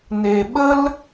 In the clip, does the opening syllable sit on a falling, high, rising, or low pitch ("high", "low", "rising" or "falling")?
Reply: low